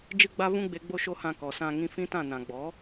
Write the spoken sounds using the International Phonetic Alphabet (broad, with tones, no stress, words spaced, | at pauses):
d͡ʒɨ˦ɡ͡ba˦vũ˦ɡ͡be˧ ɡ͡bo˦ʃo˦hã˧kɔ˨ sã˧ŋĩ˧fĩ˦tã˦˨ nã˨ɡ͡bɔ˨˦